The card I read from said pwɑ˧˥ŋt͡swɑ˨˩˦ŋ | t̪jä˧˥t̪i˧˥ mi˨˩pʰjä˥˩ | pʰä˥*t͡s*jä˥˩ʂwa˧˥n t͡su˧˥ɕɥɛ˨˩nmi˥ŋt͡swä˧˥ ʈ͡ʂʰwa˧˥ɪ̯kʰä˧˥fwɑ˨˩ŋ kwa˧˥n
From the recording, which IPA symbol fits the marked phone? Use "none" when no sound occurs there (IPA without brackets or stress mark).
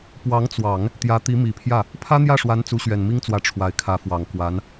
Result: n̪